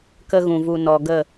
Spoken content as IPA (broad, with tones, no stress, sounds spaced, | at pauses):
k ə˦ ɣ ũ˨ v u˧ n ɔ˨ ɡ ə˦˨